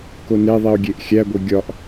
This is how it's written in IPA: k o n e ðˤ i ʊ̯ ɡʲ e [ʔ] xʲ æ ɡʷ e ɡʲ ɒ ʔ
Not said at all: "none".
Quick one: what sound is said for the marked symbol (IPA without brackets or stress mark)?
ʔ